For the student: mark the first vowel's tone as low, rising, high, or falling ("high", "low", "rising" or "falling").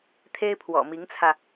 high